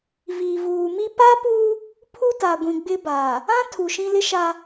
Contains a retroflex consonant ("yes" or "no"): no